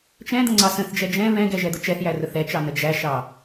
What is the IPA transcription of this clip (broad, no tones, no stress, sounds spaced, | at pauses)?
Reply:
t͡ʃ ɛ̃ d̪ ə̃ ŋ͡ǀ ɑ s ə̃ θ d͡ʒ ɛ d͡ʒ ɛ̃ β ɛ̃ ɡ ɛ ʒ ɛ d̪ ʊ t͡ʃ ɛ θ j æ r ʊ θ ɛ t͡ʃ ɑ n ə d͡ʒ æ ʃ ɑ